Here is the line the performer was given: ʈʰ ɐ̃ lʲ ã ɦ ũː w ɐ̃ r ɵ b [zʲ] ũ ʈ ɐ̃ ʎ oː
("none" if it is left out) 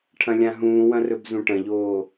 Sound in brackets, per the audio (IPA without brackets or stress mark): z